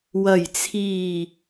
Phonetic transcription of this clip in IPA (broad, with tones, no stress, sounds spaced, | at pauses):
w ɐ˨˩ j t͡sʰ iː˨˩